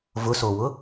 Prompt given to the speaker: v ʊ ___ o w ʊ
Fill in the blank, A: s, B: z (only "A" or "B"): A